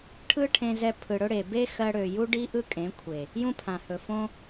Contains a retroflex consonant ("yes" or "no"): yes